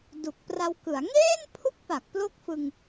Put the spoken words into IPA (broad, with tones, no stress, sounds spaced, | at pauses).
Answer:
d u˨˩ k̚ p r a˧ w k ɯ˩˦ a̯ ŋ eː˥˩ n pʰ u˥˩ k̚ p a˨˩ k̚ p l o˦˥ k̚ f ɯ˧ ŋ